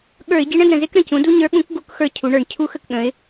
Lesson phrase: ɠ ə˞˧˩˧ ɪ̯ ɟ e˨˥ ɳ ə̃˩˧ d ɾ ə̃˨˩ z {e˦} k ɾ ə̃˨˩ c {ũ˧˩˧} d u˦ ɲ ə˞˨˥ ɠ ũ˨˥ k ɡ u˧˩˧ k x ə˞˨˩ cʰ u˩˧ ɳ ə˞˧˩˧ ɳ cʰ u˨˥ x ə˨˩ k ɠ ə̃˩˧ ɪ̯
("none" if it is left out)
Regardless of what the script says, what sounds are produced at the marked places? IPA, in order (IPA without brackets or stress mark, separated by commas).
e˦, ũ˩˧